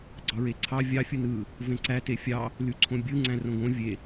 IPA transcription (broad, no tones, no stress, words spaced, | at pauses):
ɡ͡ǀɑɹeǀʰɑ vʲɑ fʲɯnɯ | vẽǀæ tefʲɑ | lyǀʰõbʲɯ ŋ͡ǀæ̃rõɡõ vʲe